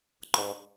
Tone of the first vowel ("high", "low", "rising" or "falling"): high